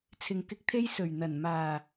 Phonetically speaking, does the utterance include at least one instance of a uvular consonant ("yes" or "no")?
no